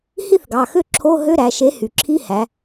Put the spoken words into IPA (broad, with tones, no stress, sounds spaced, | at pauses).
h i˥˧ θ ɡ ɑ˩˧˩ x ø˥˧ ǁʰ o˧˥˧ ɦ ø˧˥˧ ɾ æ˩˧ ʃ e˨˥ h y˩ ǁʰ i˧˥˧ h æ˩˧